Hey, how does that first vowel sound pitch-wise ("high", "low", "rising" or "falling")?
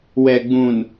low